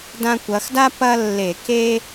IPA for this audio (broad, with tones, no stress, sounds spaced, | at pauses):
d ã˧ kʷ ɐ˩˧ x d a˥ p ɐ˥ lː e˧˩˧ k e˥